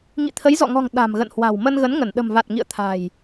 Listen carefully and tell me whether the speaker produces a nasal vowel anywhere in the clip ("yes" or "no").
no